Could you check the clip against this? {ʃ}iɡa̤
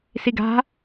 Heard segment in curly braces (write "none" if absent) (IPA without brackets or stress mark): s